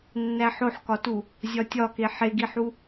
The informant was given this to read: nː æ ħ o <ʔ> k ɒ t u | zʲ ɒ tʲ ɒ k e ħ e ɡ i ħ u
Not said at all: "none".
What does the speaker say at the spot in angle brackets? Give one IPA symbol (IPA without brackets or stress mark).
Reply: ħ